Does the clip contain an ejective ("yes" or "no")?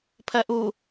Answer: no